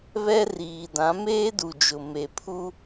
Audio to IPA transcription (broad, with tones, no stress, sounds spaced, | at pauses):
β ɛ˦ r iː˨ d ã˨˦ m eː˦ d u˨ d͡ʒ ʊ˨ m e˨ pʰ u˦